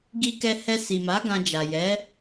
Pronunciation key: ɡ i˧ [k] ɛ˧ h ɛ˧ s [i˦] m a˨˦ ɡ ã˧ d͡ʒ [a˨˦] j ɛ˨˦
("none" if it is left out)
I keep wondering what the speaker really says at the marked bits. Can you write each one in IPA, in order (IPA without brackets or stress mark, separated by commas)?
k, i˨, a˨